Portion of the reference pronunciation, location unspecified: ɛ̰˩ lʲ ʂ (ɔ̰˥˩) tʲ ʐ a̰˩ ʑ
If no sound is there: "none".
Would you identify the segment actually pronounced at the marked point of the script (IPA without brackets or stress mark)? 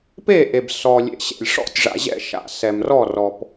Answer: ɔ̰˥˩